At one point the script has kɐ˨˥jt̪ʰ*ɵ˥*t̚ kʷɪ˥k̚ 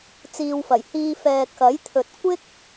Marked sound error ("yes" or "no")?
yes